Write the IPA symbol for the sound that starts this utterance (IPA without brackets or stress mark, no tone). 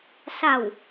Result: s